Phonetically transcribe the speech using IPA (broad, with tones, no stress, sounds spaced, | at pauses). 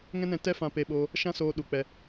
ŋ ɛ̃˦ n ɛ̃˧ t ɛ˦ f ã˧ p e˧ ɓ oː˧ | ʃ ã˦ s oː˧ ɗ u˨ k͡p ɛ˧